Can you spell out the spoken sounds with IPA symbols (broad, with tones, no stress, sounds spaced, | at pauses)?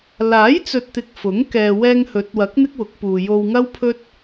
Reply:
l aː˨˥ j t͡s ɵ˨ t̚ t̪ ɪ˨ k̚ f ʊ˨˥ ŋ k ɛː˨ w ɛː˧ ŋ h ɵ˨˥ t̚ w ɐ˨˥ k̚ n̪ ɪ˥ k̚ w ʊ˨˥ k̚ p uː˨ j o˧ w ŋ ɐ˥ w pʰ ɵ˥ t̚